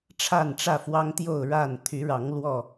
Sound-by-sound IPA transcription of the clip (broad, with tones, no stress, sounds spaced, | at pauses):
ʈ͡ʂʰ a˥˨ n ʈ͡ʂ ä˥˨ f w ɑ˦ ŋ t̪ j o˥˨ ʊ̯ ɻ a˥˨ n t̪ʰ y˨˦ ɻ ɑ˨˦ ŋ l w ɔ˥˨